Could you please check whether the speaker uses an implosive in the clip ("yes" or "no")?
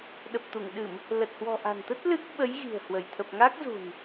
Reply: yes